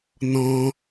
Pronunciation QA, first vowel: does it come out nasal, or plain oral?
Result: nasal